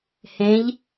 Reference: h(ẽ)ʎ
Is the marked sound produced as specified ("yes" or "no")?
yes